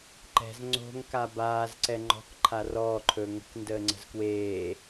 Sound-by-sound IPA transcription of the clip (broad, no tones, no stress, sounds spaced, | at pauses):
ǃ ɛ̤ z ŋ͡ǀ o̤ ŋ k a b aː z ǀ ɛ ŋ͡ǃ ɔ̤ k ǃʰ a r ɔː ǃʰ ɵː ŋ ə̤ k n d əː ŋ͡ǀ ə̤ z k w eː